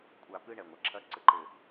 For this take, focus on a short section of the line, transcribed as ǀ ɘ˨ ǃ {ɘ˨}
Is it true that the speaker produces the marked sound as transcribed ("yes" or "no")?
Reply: yes